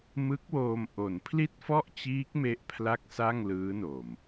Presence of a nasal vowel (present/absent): absent